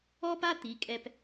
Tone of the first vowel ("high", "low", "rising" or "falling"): high